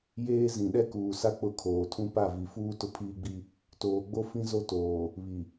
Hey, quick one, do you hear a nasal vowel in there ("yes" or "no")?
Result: yes